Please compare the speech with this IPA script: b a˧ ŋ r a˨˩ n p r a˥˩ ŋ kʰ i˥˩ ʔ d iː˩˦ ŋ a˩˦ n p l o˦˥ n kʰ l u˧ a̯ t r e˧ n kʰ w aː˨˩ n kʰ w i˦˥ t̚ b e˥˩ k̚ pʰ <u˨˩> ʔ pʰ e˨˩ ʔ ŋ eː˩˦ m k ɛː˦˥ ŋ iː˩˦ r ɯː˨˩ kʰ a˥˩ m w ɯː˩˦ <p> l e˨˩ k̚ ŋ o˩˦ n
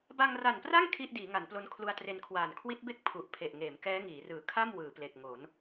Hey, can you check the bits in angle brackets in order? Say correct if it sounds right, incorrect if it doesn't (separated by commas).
correct, correct